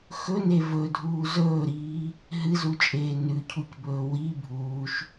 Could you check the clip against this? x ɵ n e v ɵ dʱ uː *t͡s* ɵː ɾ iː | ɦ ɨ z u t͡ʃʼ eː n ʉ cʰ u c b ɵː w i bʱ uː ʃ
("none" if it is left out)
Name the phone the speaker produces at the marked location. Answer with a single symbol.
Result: z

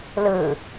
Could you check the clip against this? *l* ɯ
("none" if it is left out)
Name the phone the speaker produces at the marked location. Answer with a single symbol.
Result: l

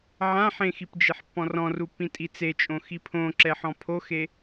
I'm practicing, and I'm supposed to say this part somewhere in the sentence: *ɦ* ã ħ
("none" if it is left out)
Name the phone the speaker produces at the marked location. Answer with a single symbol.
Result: ʕ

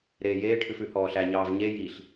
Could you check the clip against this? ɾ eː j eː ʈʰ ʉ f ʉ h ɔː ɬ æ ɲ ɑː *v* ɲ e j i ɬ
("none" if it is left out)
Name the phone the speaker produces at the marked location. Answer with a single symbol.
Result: v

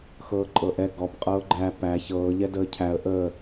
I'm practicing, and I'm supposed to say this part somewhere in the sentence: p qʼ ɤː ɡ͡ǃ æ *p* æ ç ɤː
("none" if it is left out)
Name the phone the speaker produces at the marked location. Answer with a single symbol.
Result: p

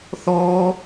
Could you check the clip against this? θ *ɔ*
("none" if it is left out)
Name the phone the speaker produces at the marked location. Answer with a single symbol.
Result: ɔː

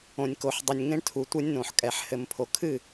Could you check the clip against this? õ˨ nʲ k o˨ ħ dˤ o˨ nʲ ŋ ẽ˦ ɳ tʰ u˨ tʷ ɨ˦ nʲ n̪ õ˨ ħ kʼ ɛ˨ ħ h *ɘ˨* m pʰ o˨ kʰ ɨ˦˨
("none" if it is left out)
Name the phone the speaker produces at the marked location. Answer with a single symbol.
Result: ɘ˨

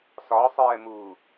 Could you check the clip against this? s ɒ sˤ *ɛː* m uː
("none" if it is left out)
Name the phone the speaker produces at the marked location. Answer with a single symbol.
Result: ɛː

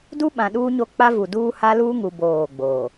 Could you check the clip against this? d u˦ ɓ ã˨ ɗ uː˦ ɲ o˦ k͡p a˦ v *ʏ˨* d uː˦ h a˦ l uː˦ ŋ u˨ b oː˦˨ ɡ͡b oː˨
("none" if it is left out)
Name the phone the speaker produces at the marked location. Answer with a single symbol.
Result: u˨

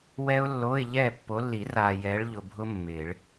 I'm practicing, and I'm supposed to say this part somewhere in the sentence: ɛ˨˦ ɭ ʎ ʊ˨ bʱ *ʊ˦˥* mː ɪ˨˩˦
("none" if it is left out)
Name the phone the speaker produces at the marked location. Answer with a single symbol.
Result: ʊ˦˥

